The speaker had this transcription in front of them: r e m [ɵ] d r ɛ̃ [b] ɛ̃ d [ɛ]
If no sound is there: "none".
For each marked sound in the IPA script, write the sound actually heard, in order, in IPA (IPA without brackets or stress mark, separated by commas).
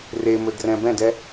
ɵ, b, ɛ